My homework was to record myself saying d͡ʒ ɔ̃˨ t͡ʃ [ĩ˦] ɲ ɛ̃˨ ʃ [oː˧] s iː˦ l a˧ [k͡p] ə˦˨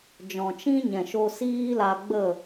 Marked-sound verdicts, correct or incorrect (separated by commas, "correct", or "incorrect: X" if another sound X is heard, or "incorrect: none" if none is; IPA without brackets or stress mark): correct, incorrect: o˧, incorrect: ɡ͡b